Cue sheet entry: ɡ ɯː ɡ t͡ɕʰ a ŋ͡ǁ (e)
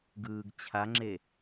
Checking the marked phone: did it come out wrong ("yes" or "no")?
no